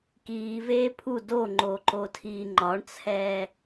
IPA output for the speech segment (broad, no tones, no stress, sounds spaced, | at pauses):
k iː v eː pʰ u d o ŋ͡ǃ o ǃ o tʰ iː ŋ͡ǃ ɒ ɳ t͡sʰ ɛː